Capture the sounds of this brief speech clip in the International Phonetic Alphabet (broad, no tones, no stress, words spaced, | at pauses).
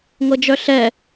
ŋɤd͡ʒœɬɛ